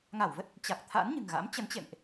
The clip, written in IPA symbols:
ŋ a˧˩ w v ə˦˥ t̚ | t͡ɕ a˨˩ k̚ t̪ʰ a̰˧˥ n ɲ ɨ̤˨˩ ŋ ɣ a̰˧˥ m t͡ɕ ə˨˦ n t͡ɕ ḛ˧˨ m ʔ

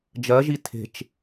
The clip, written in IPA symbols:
d͡ʒ ɜ ʒ i tʰ e̤ t͡ʃ

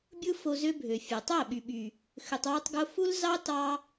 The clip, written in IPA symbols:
bʲ ɯ˦ f o˧ z ø˦ bʱ ø˨ fʲ e˨ tˤ æ˦˨ ɓ y˨ ɓ y˨ | x ø˧ tˤ w ø˦ tˤ ɡ o˦ f u˦ l z ɑ˦ t ɑ˦

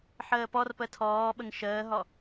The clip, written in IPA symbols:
ħ əː p ɔ r p ə tʰ ɔː ɓ ə ŋ ʃ əː ɦ ɔ

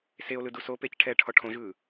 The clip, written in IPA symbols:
s e o̯ l ɯ d u s o p e c ʈʰ ɛː ʈʰ ɔ ʈʰ õ ʒ ɯː

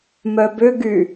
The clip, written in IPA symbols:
m œ b ʏ ɡ y

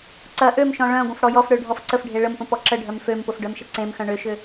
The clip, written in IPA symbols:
ǀ ɐ ʔ ø m ʃ ɔ̃ ɭ œ̃ ɡʷ ə̃ f ɽ ɔ j ɔ f ɽ ø ɖʱ ɔ f ǀ ə f ɖʱ e ɭ ə m p ə̃ p ɔ ǁ ə ɖʱ œ m f ø m p ʊ f ɖ œ m ʃ ə ǀ ẽ m x œ̃ ɳ ʏ ʃ ʏ

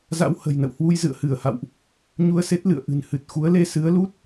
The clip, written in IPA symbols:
z a̰˧˥ w h ə̤˨˩ j n ə̰˧˨ w h w u˧ j z ɨ̰˧˨ ə̯ h ɨ˧˩ ə̯ h a̰˧˨ w ʔ | ɲ u˧ ə̯ s e˦˥ t̚ l ɨ̰˧˨ ə̯ ʔ ɨ̤˨˩ n h ɨ˨˩ t̚ x u˨˦ ə̯ l e˧ s ɨ˨˦ ə̯ l u˦˥ t̚

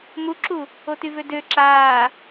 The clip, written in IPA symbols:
m u ǁ u | o t y v ø d ø ǁ aː

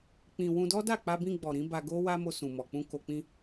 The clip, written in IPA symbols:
k͡p ĩ˧ w ũ˧ d ɔ˦ d a˦˨ k͡p a˧ b ĩ˧ ɡ͡b ɔ˨ ɾ ĩ˨˦ b a˧ ɡ o˦ w a˦ m o˧ s ũ˨ m ɔ˨ k͡p ũ˧ k o˨ k͡p ĩ˧

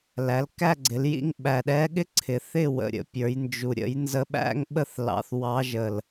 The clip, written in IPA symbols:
l æ˩˧ l k æ˥˨ ɡ͡ǀ ɪ˩˧ l j ḭ˥˨ ŋ ɓ æ˨˩ ɗ ɛ˧˥ ɠ ɪ˥ ǀʰ ɪ˨˩ θ ɪ˥˨ w ə̰˨˩ ɾʲ ə̰˧ pʲ ə˞˩˧ j n d͡ʒ u˨˩ ɾʲ ə̰˧˥ j n z ə˧˥ ɓ æ̰˥ ŋ ɓ ə˥˨ θ l ɑ̰˧ θ w ɑ˧˥ ʒ ə˨˩ l

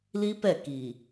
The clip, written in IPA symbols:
l i˦ p ɛ˦˨ k i˨

